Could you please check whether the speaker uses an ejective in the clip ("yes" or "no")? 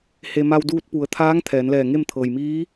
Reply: no